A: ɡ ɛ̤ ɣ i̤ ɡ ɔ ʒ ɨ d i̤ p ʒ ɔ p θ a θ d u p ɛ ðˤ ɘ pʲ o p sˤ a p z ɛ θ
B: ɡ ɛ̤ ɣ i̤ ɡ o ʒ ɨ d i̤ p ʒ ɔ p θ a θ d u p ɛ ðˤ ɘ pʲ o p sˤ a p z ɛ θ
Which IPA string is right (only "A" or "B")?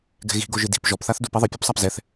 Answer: B